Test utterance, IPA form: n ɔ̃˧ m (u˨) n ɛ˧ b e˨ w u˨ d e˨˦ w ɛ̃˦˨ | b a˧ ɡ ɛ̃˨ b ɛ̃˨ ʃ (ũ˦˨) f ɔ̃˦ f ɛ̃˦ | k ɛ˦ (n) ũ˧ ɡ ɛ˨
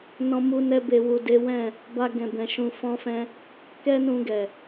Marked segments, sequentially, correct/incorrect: incorrect: u˧, incorrect: ũ˧, correct

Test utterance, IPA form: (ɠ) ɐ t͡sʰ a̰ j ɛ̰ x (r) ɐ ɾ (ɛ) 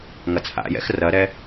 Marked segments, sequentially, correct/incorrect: incorrect: ŋ, correct, correct

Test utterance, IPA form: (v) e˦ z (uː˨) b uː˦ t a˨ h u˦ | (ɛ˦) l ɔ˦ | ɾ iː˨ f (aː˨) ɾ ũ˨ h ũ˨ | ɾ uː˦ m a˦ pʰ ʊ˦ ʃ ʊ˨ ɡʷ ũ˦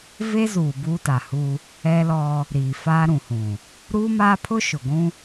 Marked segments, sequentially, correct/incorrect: correct, correct, correct, incorrect: aː˦

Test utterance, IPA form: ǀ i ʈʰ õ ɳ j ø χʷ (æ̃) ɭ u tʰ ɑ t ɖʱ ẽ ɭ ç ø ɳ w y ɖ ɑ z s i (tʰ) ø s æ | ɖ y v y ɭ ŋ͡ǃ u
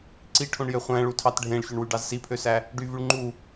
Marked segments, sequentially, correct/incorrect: correct, incorrect: pʰ

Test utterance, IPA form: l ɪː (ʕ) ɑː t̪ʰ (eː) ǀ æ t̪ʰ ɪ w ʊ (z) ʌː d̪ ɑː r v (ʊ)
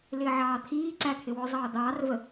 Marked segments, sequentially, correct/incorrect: correct, incorrect: iː, incorrect: zˤ, incorrect: ə

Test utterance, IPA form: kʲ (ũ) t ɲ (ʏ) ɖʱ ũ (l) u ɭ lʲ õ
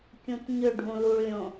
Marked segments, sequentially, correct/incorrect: correct, correct, correct

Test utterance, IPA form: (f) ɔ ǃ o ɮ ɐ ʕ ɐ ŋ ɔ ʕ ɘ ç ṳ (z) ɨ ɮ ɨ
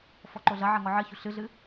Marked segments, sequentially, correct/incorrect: correct, incorrect: ɬ

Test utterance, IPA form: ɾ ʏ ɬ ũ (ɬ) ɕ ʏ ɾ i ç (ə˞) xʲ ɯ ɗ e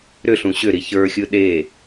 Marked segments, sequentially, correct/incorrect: incorrect: none, correct

